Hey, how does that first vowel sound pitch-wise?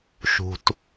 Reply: low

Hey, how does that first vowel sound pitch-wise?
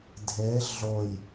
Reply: rising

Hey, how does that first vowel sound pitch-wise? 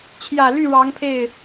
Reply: low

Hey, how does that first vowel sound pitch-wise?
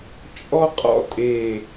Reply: high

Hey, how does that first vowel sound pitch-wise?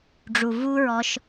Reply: low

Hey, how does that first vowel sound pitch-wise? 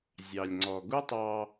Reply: low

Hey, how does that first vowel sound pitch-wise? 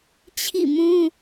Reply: falling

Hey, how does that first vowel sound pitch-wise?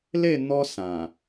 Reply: falling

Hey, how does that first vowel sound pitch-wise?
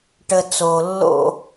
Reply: low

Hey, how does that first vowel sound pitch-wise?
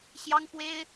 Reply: high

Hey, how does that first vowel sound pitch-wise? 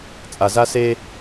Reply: low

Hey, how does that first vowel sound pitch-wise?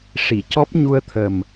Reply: low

